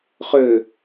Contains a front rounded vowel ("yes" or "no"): yes